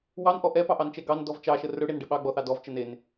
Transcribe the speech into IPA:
w ɑ n ʔ ɔ ʔ ɛ p ɑ ʔ ɑ n t͡ʃ ɛ ɡ ɑ n d ɔ v t͡ʃ ɑ ʃ ə r ɵ ɽ e n ɖ ɛ ɓ ɑ ɡ͡b ɔ θ ɑ d ɔ v t͡ʃ ə n e n

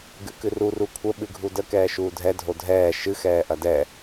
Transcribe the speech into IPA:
ɡ ɨ k ɨ r u r u kʷʰ ə ɓ ɨ ɡʱ u d ə k ɛː ʃ uː dʱ ɛ dʱ o dʱ ɛː ʃ ɨ x ɛː ʔ ɐ d ɛ

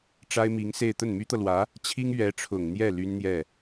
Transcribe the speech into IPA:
ʈ͡ʂ a˥ ɪ̯ m i˧˥ ŋ s e˥˧ ɪ̯ t̪ ə˥˩ n m y˥ t̪ ɤ˨ l w ä˧˥ | t͡ɕʰ i˥ ŋ ɥ ɛ˧˥ ʈ͡ʂʰ ʊ˨˩ ŋ n̪ j ɛ˥˩ l y˥ n n̪ j ɛ˥˩

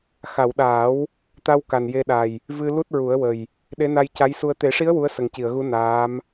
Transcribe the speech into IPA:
x a˨˩˨ w ɗ aː˨˩˦ w | t̪ a˧ w k a˨˩ n j e˧ ɗ a˨˩ j | v ɨ˧ l u˦˥ t̚ ɹ u˨˩˦ ə̯ w ə˨˩ j | ɗ e˧˥ n a˧ j c a˧˥ j s u˧ ə̯ t̪ e˨˩˦ ʂ i˧˥ ə̯ w u˧˥ ə̯ s ə˨˩ ŋ c i˨˩˨ ə̯ ɣ u˧˥ n aː˧˥ m

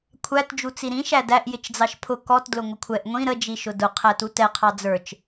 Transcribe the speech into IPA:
kʷʰ æ t d͡ʒ u t͡s i ɾ ĩ ʃ æ d æ ʔ j ɪ t͡ʃ d͡z ɑ ʃ pʰ ʊ k ɔ t d l ʊ ŋʷ ɪ kʷʰ ɛ ʔ ŋʷ ĩ ɾ ə d͡ʒ i ʃ ʊ d ʊ qʰ æ t u t ɛ qʰ ɑ d͡z ə˞ t͡ʃ

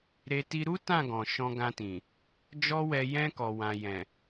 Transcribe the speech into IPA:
ɾ e˧ t i˧ ɾ u˦ t ã˦˨ ɡ ɔ̃˨ ʃ ɔ̃˧ ɡ ã˧ t ĩ˨ | d͡ʒ ɔ˦ w ɛ˧ j ɛ̃˧ k ɔ˨ w ã˨ j ɛ̃˨

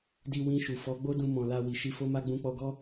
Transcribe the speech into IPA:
d i˧ w ĩ˧ ʃ u˨ f ɔ˨˦ ɡ͡b o˦ d ũ˧ m ɔ̃˨ l a˧ w i˨ ʃ i˧ f o˦ m a˦ ɡ͡b ũ˧ k͡p ɔ˧ ɡ ɔ˦

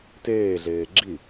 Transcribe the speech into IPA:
t eː ɮ eː ɡ͡ǁ i

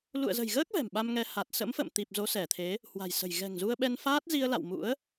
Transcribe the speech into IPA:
l ṵ˧˨ ə̯ z ə̤˨˩ j ɣ əː˦˥ k̚ v ɛ̤˨˩ m ɓ a˧ m ŋ ɛ˧ h a˨˩ t̚ s ə̰˧˥ m f ə̰˧˨ m t̪ i˨˩ p̚ z o˨˦ s ɛ˧˩ t̪ʰ e˨˦ | h w a̤˨˩ j s ə̤˨˩ j ɣ ɛ̤˨˩ ŋ z u˧ ə̯ ɓ ɛ˧ n f aː˦˥ t̚ z i˧ ə̯ l a̰˧˨ w m ṵ˧˥ ə̯

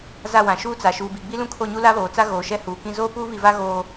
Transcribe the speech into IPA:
z a˦˨ w ã˨ ʃ uː˦ t͡s a˨ ʃ uː˨ b i˨ ɡ͡b i˦ l ũ˦ kʰ o˦˨ ɲ u˦ l a˦ β oː˨ t͡s a˦ ɣ oː˨ ʃ ɛ˦ h uː˨ k ĩ˦ z oː˦ p uː˦ β i˨ v a˦ ɣ oː˦

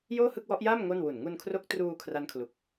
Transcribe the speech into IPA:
j oː˥˩ h ɯ˥˩ k̚ w ɔ˦˥ ʔ j aː˥˩ m ŋ o˥˩ n w u˨˩ n ŋ u˧ n kʰ r o˦˥ k̚ t r uː˧ kʰ r a˦˥ n kʰ l u˨˩ k̚

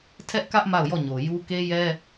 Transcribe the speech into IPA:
tʰ ɛ˦ ʔ k ä˦ ʔ m a˦˨ ʊ̯ j ɔ˦˨ ɲ o˨ j u˦ k e˦ j ɛ˦

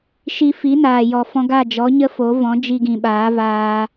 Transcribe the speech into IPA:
ʃ i˧ f i˨˦ n aː˨ j ɔ˨ f ɔ̃˧ ɡ a˦˨ d͡ʒ ɔ˨˦ ɲ ə˦ f o˨˦ v ɔ̃˨˦ d͡ʒ i˧ ɡ ĩ˨ ɓ aː˨˦ v aː˧

